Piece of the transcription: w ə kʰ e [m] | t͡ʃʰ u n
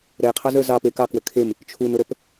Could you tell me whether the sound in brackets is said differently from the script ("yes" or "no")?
no